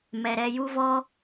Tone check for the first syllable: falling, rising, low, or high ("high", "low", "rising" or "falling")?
low